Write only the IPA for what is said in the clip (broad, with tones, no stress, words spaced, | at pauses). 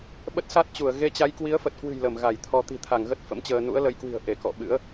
ɓə˦˥t̚sa˦˥t̚t͡ɕu˧˩ə̯ ɣe˧t͡ɕa˨˦j kwi˨˦ə̯fə˨˩t̚kwɨ̤˨˩j lə˧˩mɣa˧˩jt̪ʰɔ˧ t̪i̤˨˩t̪ʰa˧˩ŋɣə˦˥t̚ fə̰˧˥mt͡ɕəː˧ nṵ˧˥ə̯lə˨˦jkwi̤˨˩ə̯ ʔe˧˩kɔ̰˧˨ɓɨ̰˧˥ə̯